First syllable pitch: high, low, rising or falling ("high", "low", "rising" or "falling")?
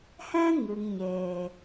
high